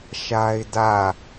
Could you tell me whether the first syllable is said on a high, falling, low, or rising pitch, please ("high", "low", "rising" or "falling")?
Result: high